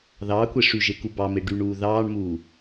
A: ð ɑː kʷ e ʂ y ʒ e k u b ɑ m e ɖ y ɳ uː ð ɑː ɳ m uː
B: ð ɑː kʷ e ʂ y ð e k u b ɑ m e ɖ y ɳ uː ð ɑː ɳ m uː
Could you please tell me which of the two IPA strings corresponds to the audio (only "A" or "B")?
A